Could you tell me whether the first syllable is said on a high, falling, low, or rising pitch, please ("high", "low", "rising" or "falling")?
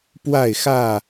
falling